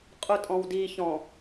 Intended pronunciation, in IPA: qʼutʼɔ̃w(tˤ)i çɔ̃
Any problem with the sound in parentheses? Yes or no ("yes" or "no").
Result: yes